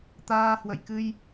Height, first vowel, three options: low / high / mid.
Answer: low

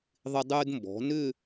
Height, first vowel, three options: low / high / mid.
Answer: high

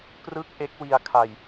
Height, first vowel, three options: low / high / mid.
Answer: high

